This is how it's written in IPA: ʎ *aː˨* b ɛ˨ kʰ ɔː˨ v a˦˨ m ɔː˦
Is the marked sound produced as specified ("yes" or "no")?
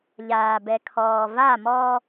yes